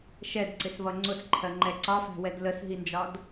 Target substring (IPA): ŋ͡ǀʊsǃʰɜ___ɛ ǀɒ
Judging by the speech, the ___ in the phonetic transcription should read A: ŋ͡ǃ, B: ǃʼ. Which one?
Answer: A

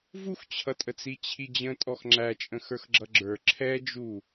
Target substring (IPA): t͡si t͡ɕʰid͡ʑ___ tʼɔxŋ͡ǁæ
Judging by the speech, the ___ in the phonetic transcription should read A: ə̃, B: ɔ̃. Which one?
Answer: A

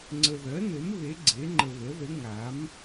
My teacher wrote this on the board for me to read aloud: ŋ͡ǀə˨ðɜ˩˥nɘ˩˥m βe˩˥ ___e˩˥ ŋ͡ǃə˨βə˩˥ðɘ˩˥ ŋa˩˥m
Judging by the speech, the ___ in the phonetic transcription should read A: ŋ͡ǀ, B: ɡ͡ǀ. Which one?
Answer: B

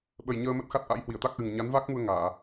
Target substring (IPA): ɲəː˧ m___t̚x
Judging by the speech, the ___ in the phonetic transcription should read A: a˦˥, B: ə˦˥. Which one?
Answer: B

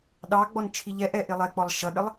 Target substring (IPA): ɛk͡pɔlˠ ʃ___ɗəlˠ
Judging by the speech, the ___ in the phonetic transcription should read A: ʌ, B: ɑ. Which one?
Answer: A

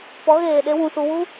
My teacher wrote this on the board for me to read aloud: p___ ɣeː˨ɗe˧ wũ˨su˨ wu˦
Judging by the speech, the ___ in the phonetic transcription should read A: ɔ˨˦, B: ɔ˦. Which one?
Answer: A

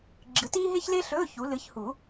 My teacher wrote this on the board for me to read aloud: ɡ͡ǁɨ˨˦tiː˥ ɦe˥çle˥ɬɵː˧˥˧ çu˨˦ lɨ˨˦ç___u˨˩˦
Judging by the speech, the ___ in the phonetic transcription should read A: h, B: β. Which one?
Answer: A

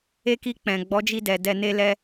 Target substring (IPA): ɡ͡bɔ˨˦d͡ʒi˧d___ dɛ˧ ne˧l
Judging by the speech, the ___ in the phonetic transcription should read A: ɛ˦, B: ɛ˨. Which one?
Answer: B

